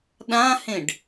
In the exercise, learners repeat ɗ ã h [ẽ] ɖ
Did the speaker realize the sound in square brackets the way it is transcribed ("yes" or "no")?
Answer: yes